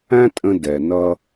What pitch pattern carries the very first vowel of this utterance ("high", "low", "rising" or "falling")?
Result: high